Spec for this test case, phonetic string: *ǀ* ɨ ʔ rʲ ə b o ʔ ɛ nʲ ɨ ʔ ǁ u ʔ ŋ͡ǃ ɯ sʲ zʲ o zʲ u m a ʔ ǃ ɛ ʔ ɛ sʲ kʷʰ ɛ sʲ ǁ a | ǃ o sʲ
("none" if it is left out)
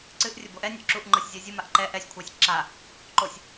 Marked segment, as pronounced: ǀ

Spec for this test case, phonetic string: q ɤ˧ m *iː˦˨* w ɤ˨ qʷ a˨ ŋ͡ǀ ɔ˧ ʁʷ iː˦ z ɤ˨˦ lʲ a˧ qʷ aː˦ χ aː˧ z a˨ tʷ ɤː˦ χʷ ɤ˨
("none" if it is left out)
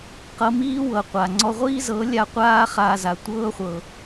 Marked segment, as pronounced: iː˦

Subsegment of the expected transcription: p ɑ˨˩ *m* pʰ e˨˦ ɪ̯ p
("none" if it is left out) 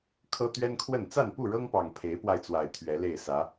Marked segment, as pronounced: ŋ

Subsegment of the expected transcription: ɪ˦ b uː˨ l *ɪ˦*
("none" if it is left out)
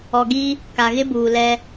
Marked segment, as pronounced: ɛ˦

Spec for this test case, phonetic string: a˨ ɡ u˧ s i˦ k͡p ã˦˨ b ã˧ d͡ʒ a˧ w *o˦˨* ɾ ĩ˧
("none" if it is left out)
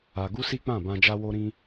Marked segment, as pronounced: o˧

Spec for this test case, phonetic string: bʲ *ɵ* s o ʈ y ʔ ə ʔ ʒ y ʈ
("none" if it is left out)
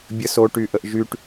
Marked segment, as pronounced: ə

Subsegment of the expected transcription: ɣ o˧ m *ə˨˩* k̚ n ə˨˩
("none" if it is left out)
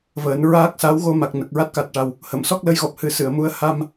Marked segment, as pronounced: a˨˩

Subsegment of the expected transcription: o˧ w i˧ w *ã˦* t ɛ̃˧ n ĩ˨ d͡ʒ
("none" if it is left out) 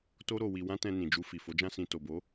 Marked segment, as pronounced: ã˦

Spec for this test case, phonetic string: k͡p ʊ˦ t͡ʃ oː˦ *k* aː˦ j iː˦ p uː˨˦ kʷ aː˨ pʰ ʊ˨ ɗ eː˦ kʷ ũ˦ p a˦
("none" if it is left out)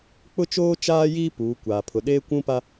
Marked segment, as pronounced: t͡ʃ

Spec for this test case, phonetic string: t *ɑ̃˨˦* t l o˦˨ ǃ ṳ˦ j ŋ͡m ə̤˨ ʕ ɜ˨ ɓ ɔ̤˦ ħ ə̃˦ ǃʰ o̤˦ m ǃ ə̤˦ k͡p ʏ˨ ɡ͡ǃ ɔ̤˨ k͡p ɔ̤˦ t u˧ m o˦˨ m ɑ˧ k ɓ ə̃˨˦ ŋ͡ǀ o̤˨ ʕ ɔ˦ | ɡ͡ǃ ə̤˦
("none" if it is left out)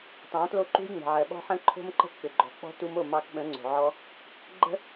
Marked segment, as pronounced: ɑ̃˨˦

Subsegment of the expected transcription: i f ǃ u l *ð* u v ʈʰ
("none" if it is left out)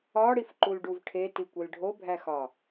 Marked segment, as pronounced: ɖ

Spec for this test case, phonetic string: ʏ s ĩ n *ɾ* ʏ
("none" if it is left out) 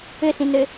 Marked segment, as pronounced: ɾ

